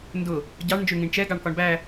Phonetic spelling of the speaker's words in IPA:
ndʊ | ɟɑɳ nd͡ʒʊɳŋĩɳt͡ʃɛ ɡɑɳkɒɳbæ

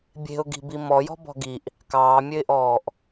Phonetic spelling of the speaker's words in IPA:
bʲe̤ʊ̯ɡi̤bi mɔjɔ̤bɔ̤ ɡiʔ | kɑːmʲøɪ̯ʔɔːʔ

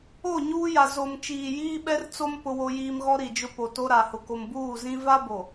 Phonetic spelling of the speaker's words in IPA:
o˦˨ɲuː˦ja˨ zo˨m t͡ʃiː˨jiː˦ɓɛ˦r t͡so˦m pʊ˦wo˦jiː˦m ɣɔ˦ɾi˨d͡ʒʊ˦ po˨to˦ɾa˨hʊ˨ ko˨mbuː˦˨zĩ˦ va˦bo˨

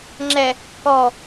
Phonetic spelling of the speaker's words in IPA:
ŋ͡ǁɛ | kɔ

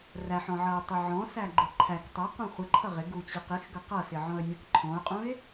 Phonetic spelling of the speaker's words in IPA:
ræħɔ̃ʕʌʊ̯tˤɪ ʕɔ̃sæɡ͡ǃɪ ǃʰæk tˤʌqũ χʷɪǃʰʌ ʁɪɡut͡ɕi qixɡʌ qʌsɪʕɔ̃ə̯nʲɔ̃k ǃʰɔ̃ʊ̯qʼũɪ̯

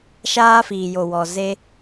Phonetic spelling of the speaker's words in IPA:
ʃaː˦fiː˨jo˨wɔ˨ ze˦

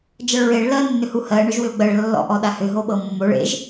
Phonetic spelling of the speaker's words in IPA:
d͡ʒʌɭɹeɭ lɜnːʏhu hɜ ɳʏʒwʏo̯ɡ͡bɜɭ lːɔ̰ʔɔ ɗahʏ ɦoɓɤmːoɭ ḛʒ

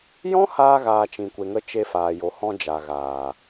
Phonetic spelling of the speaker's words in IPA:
jɔ̃˦haː˧ɣaː˨ t͡ʃĩ˨kʷe˨ŋə˧ t͡ʃe˧faː˨jo˨hɔ̃˧ d͡ʒa˨ɣaː˨

